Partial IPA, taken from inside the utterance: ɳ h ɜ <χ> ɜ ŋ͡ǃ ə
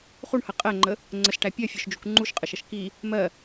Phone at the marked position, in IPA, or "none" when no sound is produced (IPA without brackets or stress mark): qʼ